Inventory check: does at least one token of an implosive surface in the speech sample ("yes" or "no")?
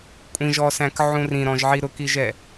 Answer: no